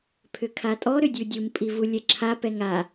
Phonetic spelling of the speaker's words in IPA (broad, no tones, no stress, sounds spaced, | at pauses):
pʰ ʏ kʰ a tʼ ɔ ɾ ʏ dʲ u dʲ u m pʼ i v u lʲ ɛ ǁʰ a p ɛ ŋ a